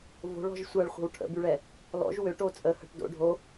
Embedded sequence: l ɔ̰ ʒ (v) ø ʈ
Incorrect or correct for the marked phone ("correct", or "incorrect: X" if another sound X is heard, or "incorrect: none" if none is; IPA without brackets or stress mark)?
incorrect: w